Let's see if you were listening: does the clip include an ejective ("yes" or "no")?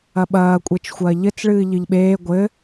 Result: yes